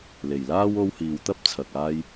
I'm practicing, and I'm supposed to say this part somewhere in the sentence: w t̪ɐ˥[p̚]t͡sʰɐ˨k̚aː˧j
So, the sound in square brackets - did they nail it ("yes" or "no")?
yes